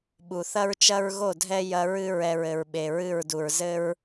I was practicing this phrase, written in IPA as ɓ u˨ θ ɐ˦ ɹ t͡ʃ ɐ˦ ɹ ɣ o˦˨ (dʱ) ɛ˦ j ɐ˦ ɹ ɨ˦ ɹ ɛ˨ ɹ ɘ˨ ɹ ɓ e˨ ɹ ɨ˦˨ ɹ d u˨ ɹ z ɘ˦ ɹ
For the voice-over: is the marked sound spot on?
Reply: yes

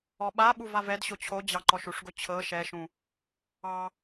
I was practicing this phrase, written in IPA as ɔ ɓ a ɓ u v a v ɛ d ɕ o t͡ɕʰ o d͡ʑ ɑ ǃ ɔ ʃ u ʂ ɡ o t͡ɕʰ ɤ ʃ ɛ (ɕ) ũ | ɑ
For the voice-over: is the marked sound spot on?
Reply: no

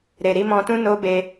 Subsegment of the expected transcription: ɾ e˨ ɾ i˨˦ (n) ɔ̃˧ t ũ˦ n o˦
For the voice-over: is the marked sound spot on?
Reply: no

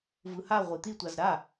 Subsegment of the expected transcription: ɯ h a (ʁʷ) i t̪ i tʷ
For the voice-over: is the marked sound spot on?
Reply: yes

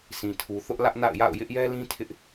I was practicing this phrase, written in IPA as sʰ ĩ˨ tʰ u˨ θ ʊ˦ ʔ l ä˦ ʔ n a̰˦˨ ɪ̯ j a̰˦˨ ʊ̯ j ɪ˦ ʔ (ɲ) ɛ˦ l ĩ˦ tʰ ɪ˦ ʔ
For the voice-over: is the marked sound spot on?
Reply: no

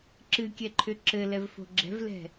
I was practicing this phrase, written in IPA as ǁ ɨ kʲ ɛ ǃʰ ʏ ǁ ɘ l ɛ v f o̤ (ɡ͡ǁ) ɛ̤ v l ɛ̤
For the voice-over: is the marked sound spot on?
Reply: yes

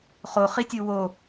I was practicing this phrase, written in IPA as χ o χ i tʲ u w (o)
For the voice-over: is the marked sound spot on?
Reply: yes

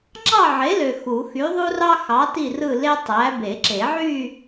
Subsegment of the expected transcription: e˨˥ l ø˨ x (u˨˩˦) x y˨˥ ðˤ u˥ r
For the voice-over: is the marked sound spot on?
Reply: yes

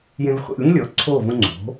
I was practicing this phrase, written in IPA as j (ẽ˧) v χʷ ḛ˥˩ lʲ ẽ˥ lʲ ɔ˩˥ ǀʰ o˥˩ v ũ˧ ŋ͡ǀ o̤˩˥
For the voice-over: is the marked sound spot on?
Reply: yes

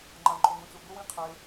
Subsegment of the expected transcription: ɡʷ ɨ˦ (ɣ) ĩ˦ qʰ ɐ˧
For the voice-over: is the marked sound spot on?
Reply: no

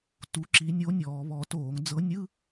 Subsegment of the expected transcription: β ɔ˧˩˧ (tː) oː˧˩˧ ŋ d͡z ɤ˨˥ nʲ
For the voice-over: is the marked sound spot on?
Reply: no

